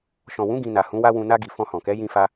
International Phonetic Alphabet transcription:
ʃ ɔ̃˨ w ũ˨˦ ɡ ĩ˧ n a˨ h ũ˨˦ w a˦ w ũ˧ n a˧ ɡ i˨ f ɔ̃˧ h ɔ̃˨ k ɛ˨˦ j ĩ˦ f a˦

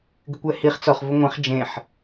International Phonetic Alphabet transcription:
ɡ ɪ kʷ ɛ h i χ t͡s ɔ χ v ʊ ŋʷ ẽ χ d͡ʒ ẽ ħ

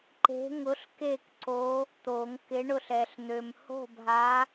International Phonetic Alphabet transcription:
ǃ e̤˧˥ ŋ ʊ˧˥ ɬ k e˥˨ k ǀ o˧˥ | t̪ o˨˩˦ ŋ k ɪ˧˥ ɳ ʊ˥˨ ɬ ɛ˨ ɬ n̪ ø˨ m h o̤˥˨ bʱ a˧˥

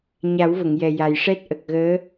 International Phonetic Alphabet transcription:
ɲ a˨˩˦ w v ə˨˩˨ ŋ j ɛ˨˩ j a˨˩ j ʂ ɛ˦˥ t̚ ʔ ə˨˩ k̚ ɣ əː˧˥

